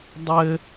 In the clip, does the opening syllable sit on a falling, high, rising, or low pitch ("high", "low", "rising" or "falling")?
high